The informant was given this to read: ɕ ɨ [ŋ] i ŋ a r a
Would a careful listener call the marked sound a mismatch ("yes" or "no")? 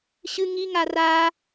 no